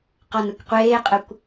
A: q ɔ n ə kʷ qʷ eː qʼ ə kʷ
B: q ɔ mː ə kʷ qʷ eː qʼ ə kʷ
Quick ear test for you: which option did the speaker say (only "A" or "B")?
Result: A